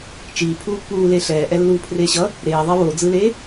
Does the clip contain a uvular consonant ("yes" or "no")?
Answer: no